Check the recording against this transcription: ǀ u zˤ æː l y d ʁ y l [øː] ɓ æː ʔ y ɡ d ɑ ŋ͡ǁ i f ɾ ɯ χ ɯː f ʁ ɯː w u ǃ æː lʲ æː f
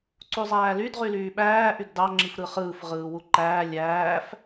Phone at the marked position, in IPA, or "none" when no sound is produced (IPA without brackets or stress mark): yː